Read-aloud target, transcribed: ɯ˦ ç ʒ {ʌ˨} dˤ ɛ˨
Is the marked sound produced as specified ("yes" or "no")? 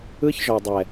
no